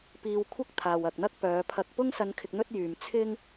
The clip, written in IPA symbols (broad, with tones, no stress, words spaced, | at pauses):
piː˨w kʷʰɐ˥k̚t̪ʰaː˨wɐ˨k̚n̪ɐ˥k̚ pœː˨˧pʰɐ˧k̚ pʊ˥ŋsɐ˧n kʰɪ˧k̚n̪ɵ˥t̚jyː˨m t͡sʰɪ˥ŋ